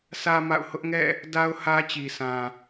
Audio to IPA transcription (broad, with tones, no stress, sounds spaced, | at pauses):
s ä˦ m a̰˦˨ ʊ̯ h ʊ˦ ʔ ŋ ɛ̰˦˨ | d a˦ ʊ̯ h ä˦ t͡ɕ i˨ s ã˨